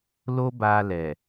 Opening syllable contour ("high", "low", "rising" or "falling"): high